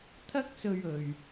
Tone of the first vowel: high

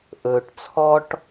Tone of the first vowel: low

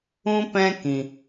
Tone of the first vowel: high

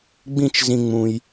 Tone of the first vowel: high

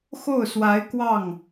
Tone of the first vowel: falling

